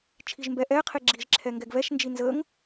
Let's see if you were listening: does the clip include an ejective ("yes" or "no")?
no